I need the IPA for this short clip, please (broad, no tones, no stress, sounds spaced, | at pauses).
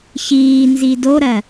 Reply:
ç iː n z i d o ɾ ɜ